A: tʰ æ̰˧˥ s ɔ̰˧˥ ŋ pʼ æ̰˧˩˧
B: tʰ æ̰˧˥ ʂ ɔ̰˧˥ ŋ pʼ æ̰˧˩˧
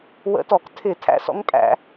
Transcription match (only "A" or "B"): A